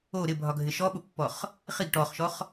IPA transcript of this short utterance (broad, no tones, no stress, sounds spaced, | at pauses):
o ɾ ɪ bʱ ɒ ɡʱ ɪ ʃ ɔ ɓ ʊ pː ɔ χ | χ i ɡ ʈ ɔ χ ʃ ɔ χ